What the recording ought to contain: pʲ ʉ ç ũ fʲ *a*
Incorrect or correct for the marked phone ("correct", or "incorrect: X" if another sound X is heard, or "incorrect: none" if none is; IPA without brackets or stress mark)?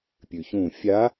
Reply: correct